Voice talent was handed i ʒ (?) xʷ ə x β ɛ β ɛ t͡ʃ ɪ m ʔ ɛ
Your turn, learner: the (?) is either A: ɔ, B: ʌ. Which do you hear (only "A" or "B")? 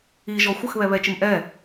A